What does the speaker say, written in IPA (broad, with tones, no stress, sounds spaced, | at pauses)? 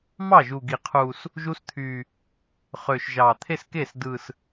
m ɑ˥˩ ʒ u˨˩ ɡ i˨˩˦ qʰ u˨˩ s | ʒ u˦˥ s t̪ʰ y˨˩ | χ ø˨˩ ʃ ʒ ɑ˨˩ t̪ʰ e˥˧ s k e˥˩ s d ɯ˨˩ s